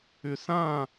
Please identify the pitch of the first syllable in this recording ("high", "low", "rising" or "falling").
low